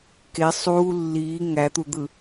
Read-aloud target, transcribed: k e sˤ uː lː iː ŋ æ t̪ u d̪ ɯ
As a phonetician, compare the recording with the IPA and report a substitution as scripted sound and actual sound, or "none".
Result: none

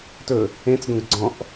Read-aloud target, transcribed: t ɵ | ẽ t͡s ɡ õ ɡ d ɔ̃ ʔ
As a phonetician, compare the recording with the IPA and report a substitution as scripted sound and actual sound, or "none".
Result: d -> ɡ͡ǀ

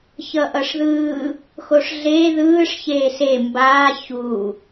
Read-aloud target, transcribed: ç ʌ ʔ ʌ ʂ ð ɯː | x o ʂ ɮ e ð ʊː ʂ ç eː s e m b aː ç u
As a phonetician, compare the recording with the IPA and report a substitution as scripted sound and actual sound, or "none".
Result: ʊː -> ɯː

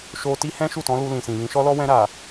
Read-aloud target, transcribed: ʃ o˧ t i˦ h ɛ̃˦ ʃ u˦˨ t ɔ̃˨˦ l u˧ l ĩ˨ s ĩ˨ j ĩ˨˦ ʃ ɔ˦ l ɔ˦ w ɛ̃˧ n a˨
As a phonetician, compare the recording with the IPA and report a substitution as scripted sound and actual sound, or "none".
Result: n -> ɾ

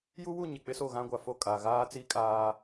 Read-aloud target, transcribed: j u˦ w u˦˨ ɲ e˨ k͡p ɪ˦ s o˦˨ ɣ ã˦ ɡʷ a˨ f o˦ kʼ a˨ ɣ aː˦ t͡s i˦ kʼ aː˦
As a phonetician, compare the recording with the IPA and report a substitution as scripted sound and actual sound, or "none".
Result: none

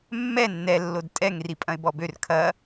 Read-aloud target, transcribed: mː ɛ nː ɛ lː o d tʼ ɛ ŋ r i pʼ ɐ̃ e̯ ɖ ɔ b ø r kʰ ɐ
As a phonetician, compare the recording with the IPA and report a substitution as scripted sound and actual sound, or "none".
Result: ɖ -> b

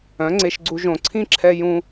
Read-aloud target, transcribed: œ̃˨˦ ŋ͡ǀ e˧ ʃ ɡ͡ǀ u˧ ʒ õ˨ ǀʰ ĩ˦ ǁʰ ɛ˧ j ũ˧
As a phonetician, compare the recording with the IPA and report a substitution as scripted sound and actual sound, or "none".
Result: none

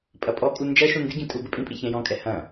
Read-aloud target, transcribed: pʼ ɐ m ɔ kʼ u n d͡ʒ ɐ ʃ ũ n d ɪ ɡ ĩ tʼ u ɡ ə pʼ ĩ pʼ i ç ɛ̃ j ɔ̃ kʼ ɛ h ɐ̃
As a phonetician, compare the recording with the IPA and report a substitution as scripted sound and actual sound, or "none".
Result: m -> pʼ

